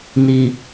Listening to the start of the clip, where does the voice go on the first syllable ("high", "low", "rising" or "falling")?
low